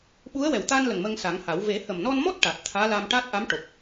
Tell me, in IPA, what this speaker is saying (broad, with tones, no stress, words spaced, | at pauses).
ɓu˧˥ə̯wɛ˨˩w t̪a˧nlə˨˩ŋ mə˧ŋsa˨˩˦ŋha˨˩˦w ve˨˩˦ hə˨˩mnɔ˧nmɔ˦˥t̚ ʈa˨˩t̚ t̪ʰaː˧˥la˧m ʈa˦˥t̚ ʔa˧˥mʈo˨˩k̚